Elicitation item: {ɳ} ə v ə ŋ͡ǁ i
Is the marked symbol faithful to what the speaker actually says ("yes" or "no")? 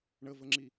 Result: yes